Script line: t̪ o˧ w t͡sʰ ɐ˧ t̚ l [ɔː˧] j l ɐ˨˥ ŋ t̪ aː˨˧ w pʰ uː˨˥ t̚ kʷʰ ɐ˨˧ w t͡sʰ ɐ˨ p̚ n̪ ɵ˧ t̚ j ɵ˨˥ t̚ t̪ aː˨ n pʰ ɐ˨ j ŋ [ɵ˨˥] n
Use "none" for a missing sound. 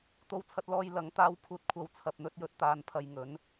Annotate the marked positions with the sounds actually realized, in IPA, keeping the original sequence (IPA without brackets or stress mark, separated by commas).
ɔː˧, ɵ˨˥